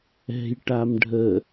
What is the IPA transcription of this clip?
ɛ̤jʈam ɖʱə

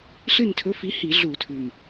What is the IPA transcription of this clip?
ɬɨ˦˨ntʰɵ˨˥fi˨˥ hi˧˩˧ɮu˧˩˧tʰʉ˨˩m

